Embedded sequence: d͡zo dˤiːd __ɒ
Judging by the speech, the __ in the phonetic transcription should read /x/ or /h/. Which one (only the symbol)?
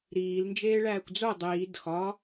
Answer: x